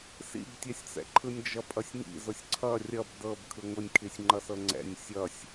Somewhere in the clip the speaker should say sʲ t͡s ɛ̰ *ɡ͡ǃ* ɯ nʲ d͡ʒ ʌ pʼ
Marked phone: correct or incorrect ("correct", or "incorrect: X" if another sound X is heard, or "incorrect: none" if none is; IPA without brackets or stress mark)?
incorrect: ǃʰ